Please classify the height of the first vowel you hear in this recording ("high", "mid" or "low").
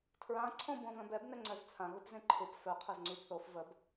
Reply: low